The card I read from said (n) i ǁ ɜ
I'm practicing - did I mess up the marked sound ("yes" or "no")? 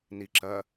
no